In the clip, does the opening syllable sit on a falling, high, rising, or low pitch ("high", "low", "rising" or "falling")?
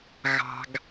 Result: low